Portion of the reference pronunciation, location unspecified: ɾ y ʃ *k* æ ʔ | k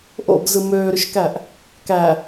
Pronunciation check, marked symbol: correct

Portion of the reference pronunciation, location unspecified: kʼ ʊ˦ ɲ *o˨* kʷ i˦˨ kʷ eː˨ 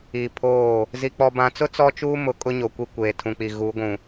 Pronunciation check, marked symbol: correct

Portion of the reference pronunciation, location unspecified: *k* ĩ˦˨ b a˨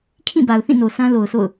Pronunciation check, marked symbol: incorrect: kʰ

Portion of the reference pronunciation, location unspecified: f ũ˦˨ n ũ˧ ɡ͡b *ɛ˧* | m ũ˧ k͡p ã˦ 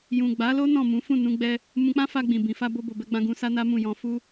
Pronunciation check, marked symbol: correct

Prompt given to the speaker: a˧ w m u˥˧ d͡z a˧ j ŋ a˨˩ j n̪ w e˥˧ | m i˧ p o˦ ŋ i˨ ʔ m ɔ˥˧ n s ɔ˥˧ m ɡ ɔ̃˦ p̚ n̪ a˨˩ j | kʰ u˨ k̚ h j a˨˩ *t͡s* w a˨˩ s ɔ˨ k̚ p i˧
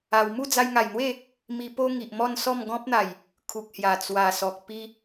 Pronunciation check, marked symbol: correct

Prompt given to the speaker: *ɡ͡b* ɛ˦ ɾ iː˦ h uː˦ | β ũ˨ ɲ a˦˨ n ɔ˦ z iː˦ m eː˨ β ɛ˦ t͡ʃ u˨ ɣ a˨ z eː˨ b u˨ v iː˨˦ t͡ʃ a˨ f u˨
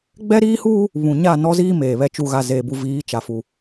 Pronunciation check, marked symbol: correct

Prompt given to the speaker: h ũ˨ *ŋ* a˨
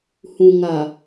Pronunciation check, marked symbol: correct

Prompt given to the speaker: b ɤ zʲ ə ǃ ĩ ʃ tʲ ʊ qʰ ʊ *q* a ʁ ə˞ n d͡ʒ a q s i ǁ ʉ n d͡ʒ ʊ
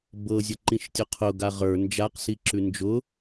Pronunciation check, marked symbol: incorrect: ɡ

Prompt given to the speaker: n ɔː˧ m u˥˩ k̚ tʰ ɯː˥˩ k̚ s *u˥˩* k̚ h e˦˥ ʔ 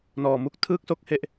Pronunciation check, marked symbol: incorrect: o˥˩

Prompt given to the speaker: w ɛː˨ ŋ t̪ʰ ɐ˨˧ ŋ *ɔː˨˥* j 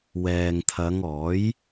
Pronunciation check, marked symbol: correct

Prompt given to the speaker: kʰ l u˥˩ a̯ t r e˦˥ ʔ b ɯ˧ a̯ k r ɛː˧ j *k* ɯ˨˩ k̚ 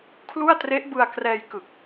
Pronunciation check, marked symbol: correct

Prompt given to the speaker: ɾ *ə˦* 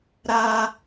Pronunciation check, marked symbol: incorrect: a˦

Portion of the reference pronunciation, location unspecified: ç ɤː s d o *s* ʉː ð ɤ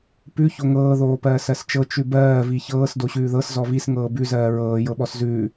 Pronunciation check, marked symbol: incorrect: ɕ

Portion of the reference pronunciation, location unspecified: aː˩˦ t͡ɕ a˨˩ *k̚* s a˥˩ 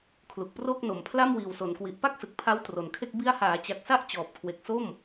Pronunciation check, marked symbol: correct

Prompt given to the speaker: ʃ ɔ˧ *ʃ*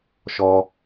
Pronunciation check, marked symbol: incorrect: none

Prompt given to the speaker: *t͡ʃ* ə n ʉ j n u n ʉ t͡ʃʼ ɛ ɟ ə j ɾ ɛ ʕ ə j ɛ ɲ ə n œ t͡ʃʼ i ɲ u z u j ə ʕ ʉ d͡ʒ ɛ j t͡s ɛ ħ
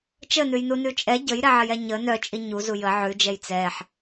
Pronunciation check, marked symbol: correct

